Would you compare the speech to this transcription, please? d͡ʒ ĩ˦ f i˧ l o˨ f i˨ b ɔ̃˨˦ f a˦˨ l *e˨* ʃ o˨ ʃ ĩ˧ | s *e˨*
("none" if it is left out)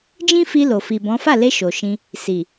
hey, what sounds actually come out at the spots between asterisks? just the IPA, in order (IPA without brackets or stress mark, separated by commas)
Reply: e˧, i˨